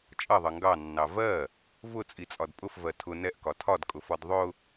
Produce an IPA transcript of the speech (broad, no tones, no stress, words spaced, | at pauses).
t͡ʃʼʌðˤʌ ŋɡɑnːɑ vɜ | vʊt͡sʼit͡sʼɒd pʼʊfvɜ tʰʊ nɛʔkɒ tʰɒdkʼʊfɒd ðˤʊ